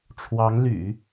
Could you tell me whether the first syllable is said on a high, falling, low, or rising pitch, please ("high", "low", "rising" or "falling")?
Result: rising